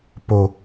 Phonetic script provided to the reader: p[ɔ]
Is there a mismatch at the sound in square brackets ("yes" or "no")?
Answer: yes